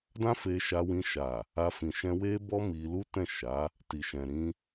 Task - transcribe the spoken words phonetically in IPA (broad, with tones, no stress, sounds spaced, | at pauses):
d ã˦ f e˧ ʃ a˧ w ĩ˧ ʃ a˨ | a˧ f ĩ˨ ʃ ɛ̃˧ w e˦ b ɔ˦ m i˧ l u˦ t ɛ̃˦˨ ʃ a˨˦ | t i˨ ʃ ɛ̃˨ ɾ ĩ˧